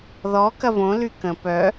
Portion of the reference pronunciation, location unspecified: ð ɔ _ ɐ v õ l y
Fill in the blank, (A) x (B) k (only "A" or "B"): B